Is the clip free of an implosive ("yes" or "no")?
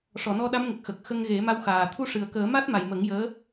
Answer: no